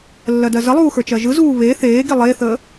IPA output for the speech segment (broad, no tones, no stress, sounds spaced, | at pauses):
lː ɜ d ɜ z ə lˠ uː x ə˞ t͡ʃ ɜ ʒ ɯ z uː β e θ eː ɡ i lˠ e θ ə